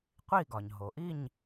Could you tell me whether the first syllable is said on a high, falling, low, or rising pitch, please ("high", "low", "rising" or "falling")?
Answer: falling